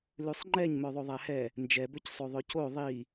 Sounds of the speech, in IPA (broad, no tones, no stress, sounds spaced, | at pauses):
l ʉ sˤ ŋ͡ǃ ɛ ɲ m œ ðˤ o ðˤ æ h ɛ | n d͡ʒ ɛ b ø c sˤ o ðˤ ɵ c o ðˤ i